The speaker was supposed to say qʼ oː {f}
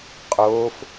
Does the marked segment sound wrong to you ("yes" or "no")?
no